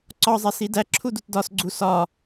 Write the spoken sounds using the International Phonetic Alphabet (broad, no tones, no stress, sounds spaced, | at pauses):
ǀ ɒ zˤ e s i d æ ǁʰ u d u t d ɒ s ɡ͡ǀ u s ɒ